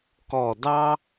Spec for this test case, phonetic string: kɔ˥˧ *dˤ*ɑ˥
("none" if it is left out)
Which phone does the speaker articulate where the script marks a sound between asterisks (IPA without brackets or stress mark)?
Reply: d